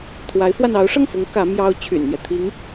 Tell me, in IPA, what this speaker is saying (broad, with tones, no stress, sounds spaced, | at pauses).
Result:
t̪ʰ w a˧˥ ɪ̯ f w a˧ n ɑ˧˥ ʊ̯ ʂ ɤ˥˩ ŋ f ʊ˧˥ ŋ k ä˧˥ m j ɑ˥ ʊ̯ t͡ɕʰ y̰˨˩ n m j ɛ˦ t̪ʰ i˧˥ ŋ